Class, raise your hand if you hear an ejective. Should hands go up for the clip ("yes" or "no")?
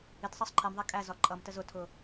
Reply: yes